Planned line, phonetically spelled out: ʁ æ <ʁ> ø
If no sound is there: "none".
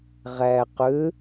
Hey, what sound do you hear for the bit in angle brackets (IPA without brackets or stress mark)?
q